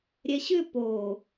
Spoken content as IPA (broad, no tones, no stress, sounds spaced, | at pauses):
ɾʲ ɛ ɕ ʏ p o